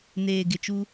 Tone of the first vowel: low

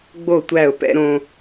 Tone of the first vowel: falling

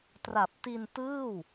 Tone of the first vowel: low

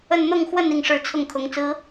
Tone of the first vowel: falling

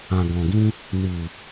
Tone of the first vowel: low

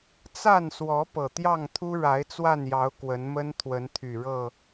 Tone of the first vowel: falling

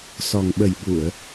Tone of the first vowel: low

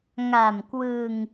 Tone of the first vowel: low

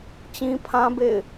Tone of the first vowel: high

